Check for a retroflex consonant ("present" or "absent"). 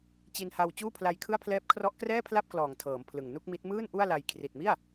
absent